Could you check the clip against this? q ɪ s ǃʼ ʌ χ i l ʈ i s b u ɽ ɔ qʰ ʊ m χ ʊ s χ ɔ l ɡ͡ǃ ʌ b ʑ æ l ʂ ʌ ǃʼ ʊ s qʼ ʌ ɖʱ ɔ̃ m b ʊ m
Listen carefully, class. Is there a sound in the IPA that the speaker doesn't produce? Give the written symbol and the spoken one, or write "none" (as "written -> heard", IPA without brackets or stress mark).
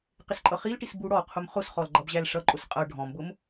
none